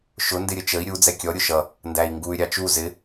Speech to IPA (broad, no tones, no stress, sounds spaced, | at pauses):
ʃ ʊ n d ɪ ɾʲ ə t͡ʃ ə i̯ ɾʲ u d͡z ɛ kʲ ɔ ɾʲ ʊ ʃ ʌ | n d æ i̯ ŋ ɡ u y̯ ɾʲ ɑ t͡ʃ u z ɪ